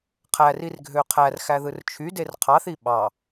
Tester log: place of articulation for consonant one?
uvular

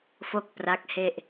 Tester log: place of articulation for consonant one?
labial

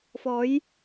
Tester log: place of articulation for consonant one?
labial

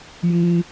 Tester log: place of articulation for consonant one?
palatal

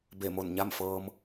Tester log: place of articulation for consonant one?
labial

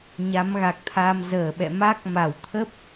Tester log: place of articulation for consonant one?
palatal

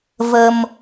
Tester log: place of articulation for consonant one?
labial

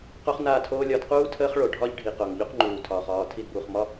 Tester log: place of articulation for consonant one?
uvular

